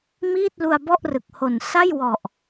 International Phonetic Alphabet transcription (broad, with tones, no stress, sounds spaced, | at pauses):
m iː˥˩ t̚ l u˧ a̯ b ɔ˥˩ ʔ r ɯ˨˩ k̚ h o˨˩ n s a˥˩ j w ɔ˨˩ ʔ